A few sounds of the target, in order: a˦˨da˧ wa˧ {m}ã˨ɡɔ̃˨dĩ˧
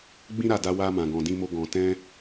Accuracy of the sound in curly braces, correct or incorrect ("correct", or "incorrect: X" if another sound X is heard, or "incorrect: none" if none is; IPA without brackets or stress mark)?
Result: correct